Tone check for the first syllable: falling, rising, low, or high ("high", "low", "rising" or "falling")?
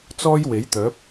high